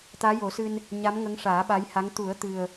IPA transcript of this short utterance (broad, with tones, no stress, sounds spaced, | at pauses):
t̪ aː˧˥ j o˨˩˦ s ɨ˧ n | ɲ a˧˥ m ŋ ə˧˥ ŋ ʂ aː˨˩˦ ɓ a˧˥ j h a˧˥ ŋ t̪ u˨˩˦ ə̯ t̪ ɨ˨˩ ə̯